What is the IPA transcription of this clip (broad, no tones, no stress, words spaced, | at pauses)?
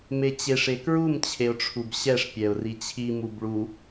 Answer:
met͡ɕeʂ ekɹum t͡ɕʰeʊ̯ʈ͡ʂʰubɕɛʂ pʲɛʊ̯rit͡ɕʰi mubɭu